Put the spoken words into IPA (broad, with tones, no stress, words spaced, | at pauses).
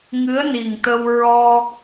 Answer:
ŋɨ˧˥ə̯ni˨˩ŋt̪ə˧w ɹɔ˧